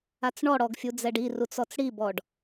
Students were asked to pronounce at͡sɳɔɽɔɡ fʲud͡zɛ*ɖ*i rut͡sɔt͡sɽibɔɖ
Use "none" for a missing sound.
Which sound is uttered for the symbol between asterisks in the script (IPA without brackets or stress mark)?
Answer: ɖ